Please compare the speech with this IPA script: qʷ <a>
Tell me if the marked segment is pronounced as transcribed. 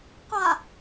yes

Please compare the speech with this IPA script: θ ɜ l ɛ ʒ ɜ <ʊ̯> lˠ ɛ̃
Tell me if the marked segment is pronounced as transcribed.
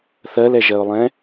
yes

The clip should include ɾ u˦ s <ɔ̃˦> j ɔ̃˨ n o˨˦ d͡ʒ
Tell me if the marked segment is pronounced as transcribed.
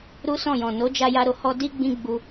no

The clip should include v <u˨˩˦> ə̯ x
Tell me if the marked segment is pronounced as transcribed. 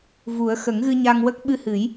yes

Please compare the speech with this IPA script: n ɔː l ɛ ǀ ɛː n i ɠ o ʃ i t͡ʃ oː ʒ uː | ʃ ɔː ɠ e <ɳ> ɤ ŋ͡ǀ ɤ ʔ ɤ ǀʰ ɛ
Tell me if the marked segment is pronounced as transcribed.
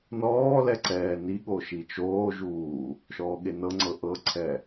no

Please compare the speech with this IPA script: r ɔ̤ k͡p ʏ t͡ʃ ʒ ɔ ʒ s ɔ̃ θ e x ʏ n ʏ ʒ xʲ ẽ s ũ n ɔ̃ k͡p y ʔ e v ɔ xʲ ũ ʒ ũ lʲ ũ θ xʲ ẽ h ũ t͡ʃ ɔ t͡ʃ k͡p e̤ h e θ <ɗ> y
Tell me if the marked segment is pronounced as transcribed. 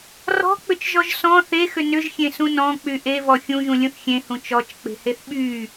no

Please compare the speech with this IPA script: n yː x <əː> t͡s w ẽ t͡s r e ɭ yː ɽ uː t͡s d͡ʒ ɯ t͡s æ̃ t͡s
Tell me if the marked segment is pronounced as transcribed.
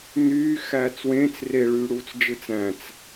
no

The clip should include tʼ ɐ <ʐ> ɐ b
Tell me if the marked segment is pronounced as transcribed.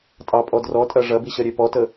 yes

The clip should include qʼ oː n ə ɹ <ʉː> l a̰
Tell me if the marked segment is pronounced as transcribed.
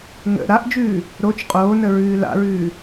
yes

